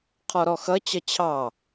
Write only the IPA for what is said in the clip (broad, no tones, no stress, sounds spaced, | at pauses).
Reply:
qʰ ɔ ɾ ɔ x ʌ t͡ɕ ʌ t͡ɕʰ ɑ